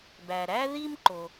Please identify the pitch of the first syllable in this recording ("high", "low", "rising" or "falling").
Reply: low